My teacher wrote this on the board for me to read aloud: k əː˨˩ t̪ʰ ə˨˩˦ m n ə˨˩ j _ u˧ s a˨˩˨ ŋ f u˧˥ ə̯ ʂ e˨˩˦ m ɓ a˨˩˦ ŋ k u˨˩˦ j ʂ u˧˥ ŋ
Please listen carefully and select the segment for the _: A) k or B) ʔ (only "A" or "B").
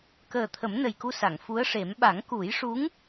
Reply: A